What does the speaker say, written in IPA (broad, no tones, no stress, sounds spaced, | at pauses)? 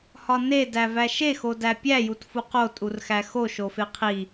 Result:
h ɒ n e d æ v æ ʃ e x o d æ pʲ æ j u t f u q o tʼ u r x æ x o ʃ o f e qʰ i